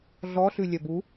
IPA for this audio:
ɮ ɔ ɬ ʉ lʲ œ b u

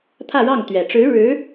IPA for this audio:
t̪ʰ ä˥˧ ɻ ɑ˥˩ ŋ t̪ ɥ ɛ˨˩ ʈ͡ʂ ɻ̩˧˥ ɻ ɻ̩˧˥

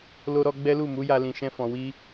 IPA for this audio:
l o˧ ɾ ɔ˧ ɡ͡b ɛ˦ l u˦˨ m u˨˦ j a˧ l ĩ˨ ʃ ɛ̃˧ f ɔ̃˨ w i˧

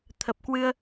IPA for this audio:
t̪ʰ ə˨˩ p̚ k w ɨ˧ ə̯

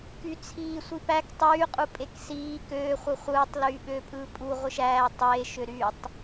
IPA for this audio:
k y t͡sʰ iː sʷ i p æ k tˤ yː qʼ u pʼ e k s iː k øː χʷ ɯ χʷ ɯː tˤ l yː ɓ øː pʼ ɯː pʼ u ʁʷ ɯ ʃ æː tˤ eː ʃ ø ɾ y tˤ

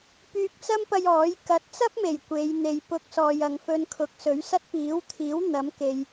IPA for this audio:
p yː˧ k̚ t͡s ɐ˥ m p ɐ˧ j ɔː˨˥ j k ɐ˨˥ t̚ t͡s ɐ˥ p̚ m e˨˩ j kʷ e˨˧ j n̪ e˨ j p ʊ˧ k̚ s ɔː˨ j ɐ˨ ŋ f ɵ˧ n kʰ ʊ˨˥ k̚ s ɵ˨˥ ɥ s ɐ˥ t̚ p iː˨˥ w t̪ʰ iː˨˥ w n̪ ɐ˨˥ m k e˨ j

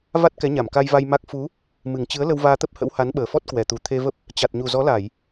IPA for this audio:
v a˦˥ t̚ k ɛ˨˦ ɲ a˧˩ m k a˧ j v a˧ j m a˦˥ k̚ f u˨˦ | m ɨ˨˩ ŋ t͡ɕ ɨ˨˦ ə̯ l ə˧ w v aː˧ t̪ ə˦˥ p̚ h ə̰˧˥ w h a˨˦ n ɓ əː˨˩ f ɔ˦˥ t̚ k w ɛ˨˩ t̪ u˨˩ t̪ʰ e˧ v ə˦˥ p̚ | t͡ɕ a˨˩ t̚ ɲ u˨˩ z ɔ˨˦ l a˧˩˨ j

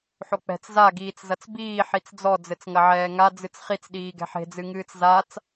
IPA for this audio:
ħ o k͡p ɛ̤ t͡s z a ɡ iː t͡s z ɐ t͡s b iː ħ i t͡s d͡z ɔ d͡z ɘ t͡s ŋ ɐ ʕ ɛː ŋ a d͡z ɨ t͡s χ i t͡s ɗ iː ɡ ɛ̤ ħ e̤ d͡z ɨ ŋ ɨː t͡s z a t͡s

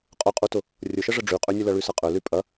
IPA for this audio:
qʼ ʊ qʼ u t ʊ | rʲ ʊ ʃ ə ʐ ə ɖ͡ʐ y qʼ ø nʲ ə l ɐ ɭ y s ɐ qʼ ø l y pʼ ɐ

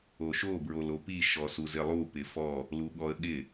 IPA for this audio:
o ʃ o b ɹ o l o p i ʃ ɔ s u z ɪ lˠ u p ɪ f ɔ | l u ɠ ɔ ə̯ ɠ ɪ

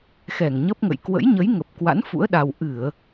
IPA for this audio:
x ɛ˧˩ ŋ ɲ ə˦˥ p̚ ŋ ə̰˧˨ j k w ə̰˧˥ j ɲ ə˨˦ j ŋ ə˨˩ p̚ k w a̰˧˥ n f ṵ˧˥ ə̯ ɗ a˧ w ʔ ɨ˧˩˨ ə̯

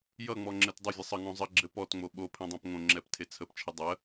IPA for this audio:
j ʌ ŋ͡m ɔ ŋ͡ǁ ɘ t dˤ ɘ vʲ ɘ sˤ ə ŋ õ zˤ ə ɡ͡ǁ ɘ p ɔ t ŋ͡m o ɓ o pʰ ẽ dˤ õ p ŋ õ ŋ͡ǁ ɛ p tʰ e t͡sʰ ə p t͡ʃʰ ə dˤ ə

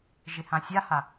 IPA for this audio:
ʒ ɪ h ã sʲ a h a

